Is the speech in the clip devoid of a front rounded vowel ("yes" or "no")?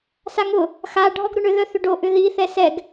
no